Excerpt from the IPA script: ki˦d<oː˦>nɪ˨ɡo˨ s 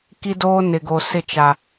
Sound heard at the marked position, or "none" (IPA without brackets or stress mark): oː˦